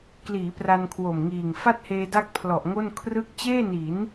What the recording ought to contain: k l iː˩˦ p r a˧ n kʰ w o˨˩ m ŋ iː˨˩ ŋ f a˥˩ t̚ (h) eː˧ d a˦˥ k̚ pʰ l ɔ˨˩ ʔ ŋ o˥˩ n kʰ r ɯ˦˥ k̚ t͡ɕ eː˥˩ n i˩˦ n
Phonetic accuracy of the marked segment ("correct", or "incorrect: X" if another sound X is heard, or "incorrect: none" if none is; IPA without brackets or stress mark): correct